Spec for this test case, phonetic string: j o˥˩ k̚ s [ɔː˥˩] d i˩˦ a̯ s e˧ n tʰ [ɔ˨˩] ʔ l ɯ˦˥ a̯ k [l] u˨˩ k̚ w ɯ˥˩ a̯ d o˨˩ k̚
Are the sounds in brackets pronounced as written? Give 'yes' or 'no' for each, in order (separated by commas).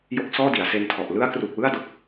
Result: yes, yes, no